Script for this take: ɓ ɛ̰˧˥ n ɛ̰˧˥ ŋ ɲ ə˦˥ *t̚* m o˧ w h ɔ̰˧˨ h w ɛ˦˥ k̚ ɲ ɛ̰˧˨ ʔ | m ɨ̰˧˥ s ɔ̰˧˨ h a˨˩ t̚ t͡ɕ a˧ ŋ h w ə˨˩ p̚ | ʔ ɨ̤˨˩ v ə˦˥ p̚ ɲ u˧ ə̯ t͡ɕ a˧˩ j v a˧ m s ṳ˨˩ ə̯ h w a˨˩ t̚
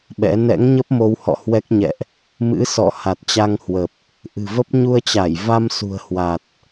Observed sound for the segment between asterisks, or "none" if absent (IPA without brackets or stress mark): p̚